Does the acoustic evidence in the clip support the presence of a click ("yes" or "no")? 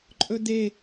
yes